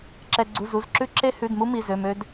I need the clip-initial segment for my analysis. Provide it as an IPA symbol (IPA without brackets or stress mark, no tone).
ǁ